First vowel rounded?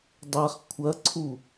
no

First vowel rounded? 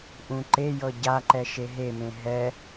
yes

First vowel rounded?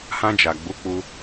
no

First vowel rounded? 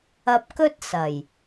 no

